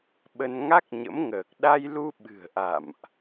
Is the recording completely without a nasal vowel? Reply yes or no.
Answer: yes